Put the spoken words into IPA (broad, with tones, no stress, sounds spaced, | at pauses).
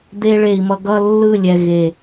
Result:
d̪ e˧ ɭ e˨ i̯ m ʌ˧ ɡ ʌ˦ lː ɯ˦˨ lʲ ɛ˨ ɣ e˨